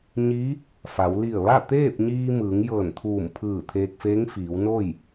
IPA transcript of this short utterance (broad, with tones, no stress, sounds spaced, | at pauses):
ɲ i˧˥ | f a˩˧ w l i˧˩ ə̯ ʋ a˥˨ t̪ eː˥˨ p̚ ɲ iː˧ m ɯː˩˧ ŋ j ɤː˧˩ n t̪ʰ uː˧˩ m pʰ ɯː˧˩ t̪ʰ eː˧ k̚ f eː˧˥ ŋ f iː˩˧ w n o˥˨ j